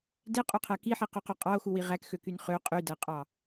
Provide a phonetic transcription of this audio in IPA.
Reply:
d e qʼ o qʰ æ k i ħ i q ø q o qʼ ɑ o̯ x u w i ʁ æ k x ø k y n χ ø qʼ y d æ qʼ ɑ

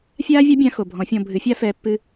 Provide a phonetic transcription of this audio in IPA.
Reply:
fʲ aː˦ vʲ a˦ bʲ ã˧ x o˨ bʱ ɔ̃˨˦ fʲ ɔ̃˧ bʱ ɨ˨˦ fʲ a˦ f ɛː˧ pː ɨ˧

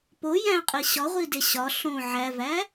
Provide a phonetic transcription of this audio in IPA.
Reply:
p o j æ̃ qʼ i ɕ ɒ ʁʷ i d e ɕ ɒ ɬ õ ʕ æ v æ

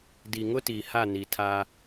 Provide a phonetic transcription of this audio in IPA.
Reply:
d i˨ ŋ ʊ˦ t iː˨ h a˦˨ n i˨ tʰ aː˦

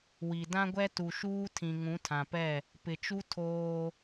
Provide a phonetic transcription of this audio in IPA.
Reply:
w i˨ d ã˦ ɡʷ ɛ˦ t u˨ ʃ uː˦ tʰ ĩ˨ ŋ ũ˨˦ tʰ ã˨ p ɛ˦˨ | p ɪ˨ t͡ʃ u˦ tʰ oː˦

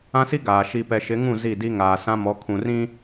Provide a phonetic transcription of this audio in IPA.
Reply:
ã˦ s i˦ ɡ aː˨ ʃ i˨ p ɛ˨ ʃ ɪ˨˦ ŋ ũ˦˨ z i˦˨ d i˦ ŋ aː˨ s ã˦ m ɔ˨˦ kʰ ũ˨ r ĩ˦

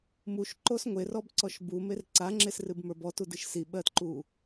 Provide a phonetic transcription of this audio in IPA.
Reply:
m u ʃ ǃ o s ŋʷ e r ɔ b ǀ ɔ ʃ b u m e r ǀ a ŋ͡ǁ e s r ɨ b m ə˞ b ɔ t u d ɨ ʃ s i ɓ ɜ t ǃ u

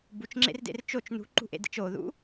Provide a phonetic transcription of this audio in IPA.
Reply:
b u t͡ʃ ŋ͡ǁ ḛ r d ḛ r t͡ʃ o t͡ʃ n ṳ ǃ ṳ ʔ ḛ d ḛ t͡ʃ o ð ṵ

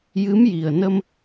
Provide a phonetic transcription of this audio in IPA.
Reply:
j ɨ˧˥ m j i˨˩ ə̯ n ə˧ m

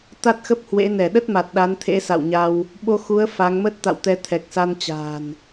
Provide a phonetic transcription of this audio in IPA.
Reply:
t̪ a˦˥ t̚ x ə˦˥ p̚ h w ḛ˧˥ n ɛ˧˩ ɗ ə˦˥ t̚ m a˨˩ t̚ ɗ a˨˦ n t̪ʰ ḛ˧˥ s a̰˧˨ w ɲ a˧ w | ɓ o˧ x u˨˦ ə̯ f a˨˦ ŋ m ə˦˥ t̚ t̪ a̰˧˨ w t̪ ɛ˨˦ t̪ʰ ɛ˨˩ k̚ s a˧ n t͡ɕ a̤ː˨˩ n

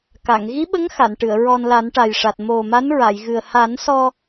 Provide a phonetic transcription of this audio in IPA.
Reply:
k a˨˩˨ ŋ ɣ i˧˥ ɓ ə˧˥ ŋ x a˨˩˨ n ʈ ɨ˨˩˨ ə̯ ɹ ɔ˧ n l a˨˩˦ n ʈ a˨˩ j ʂ a˨˩ t̚ m o˨˩ m a˧˥ n ɹ a˨˩˨ j ɣ ɨ˨˩ ə̯ h a˨˩˦ n s ɔ˧

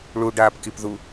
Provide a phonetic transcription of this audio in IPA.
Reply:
ɭ u ɖ aː p k i p ð u

